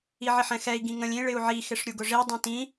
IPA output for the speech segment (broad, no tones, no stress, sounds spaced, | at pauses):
i ʕ ɪ ħ ɛ̃ x ɛ i̯ ɡ ĩ ŋ ə̃ lʲ ĩ ɭ ɪ u̯ ʕ i x ɪ ʂ ɾʲ u ɡ ʊ ʐ i dˤ ũ t ĩ